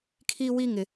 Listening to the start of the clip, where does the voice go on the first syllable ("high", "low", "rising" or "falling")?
high